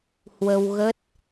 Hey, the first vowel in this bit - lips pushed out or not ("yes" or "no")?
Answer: no